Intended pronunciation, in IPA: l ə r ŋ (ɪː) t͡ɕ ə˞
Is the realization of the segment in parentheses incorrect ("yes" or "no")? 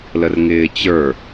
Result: no